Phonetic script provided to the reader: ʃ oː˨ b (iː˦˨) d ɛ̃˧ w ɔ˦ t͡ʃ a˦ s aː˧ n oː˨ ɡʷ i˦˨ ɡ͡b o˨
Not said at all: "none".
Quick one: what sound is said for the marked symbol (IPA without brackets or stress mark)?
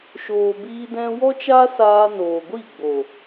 iː˧